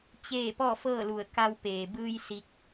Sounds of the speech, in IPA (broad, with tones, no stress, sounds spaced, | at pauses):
t͡ɕ eː˥˨ p ɔː˥˨ f ɤː˥˨ l u˧˩ ə̯ k a˧ w p eː˩ b ɯː˧ j s i˧ k̚